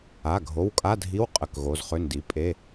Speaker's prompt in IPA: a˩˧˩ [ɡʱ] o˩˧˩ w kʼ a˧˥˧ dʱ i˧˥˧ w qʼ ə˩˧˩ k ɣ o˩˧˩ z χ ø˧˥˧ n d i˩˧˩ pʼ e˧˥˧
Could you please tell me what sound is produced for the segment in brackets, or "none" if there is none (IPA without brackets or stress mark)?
ɡʱ